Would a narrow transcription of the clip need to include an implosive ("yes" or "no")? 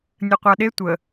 yes